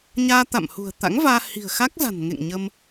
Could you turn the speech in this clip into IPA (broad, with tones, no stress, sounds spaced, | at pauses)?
ɲ aː˧ t̪ a̰˧˨ m h ṳ˨˩ ə̯ t̪ a̰˧˥ ŋ v aː˧ h i̤˨˩ ə̯ x a˦˥ k̚ z a̤˨˩ n ŋ ḛ˧˨ ŋ ɲ ə˧ m